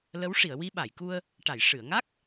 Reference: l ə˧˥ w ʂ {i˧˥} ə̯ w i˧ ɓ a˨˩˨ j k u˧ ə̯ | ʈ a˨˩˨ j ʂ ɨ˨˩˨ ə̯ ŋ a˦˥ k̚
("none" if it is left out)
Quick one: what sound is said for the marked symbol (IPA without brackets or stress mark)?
i˨˩˨